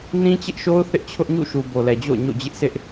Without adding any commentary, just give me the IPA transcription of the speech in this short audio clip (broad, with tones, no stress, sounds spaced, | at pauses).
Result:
n ĩ˦ t͡ɕ ɪ˦ ʔ ʃ o˦ ʊ̯ θ ɪ˦ ʔ t͡ɕʰ ʊ˦ ʔ ɲ ṵ˦˨ ʃ u˨ b o˨ l ɛ˨ d͡ʑ o̰˦˨ ʊ̯ ɲ o̰˦˨ d͡ʑ ɪ˦ ʔ sʰ ɪ˦ ʔ